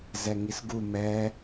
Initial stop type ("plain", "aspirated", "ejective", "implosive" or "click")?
plain